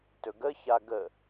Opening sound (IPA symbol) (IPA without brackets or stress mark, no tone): t